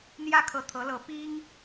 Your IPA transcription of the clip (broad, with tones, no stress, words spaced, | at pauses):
n̪jä˥kʰɤ˧˥ t̪ʰɤ˧˥lɤ˧˥ pi˥ŋ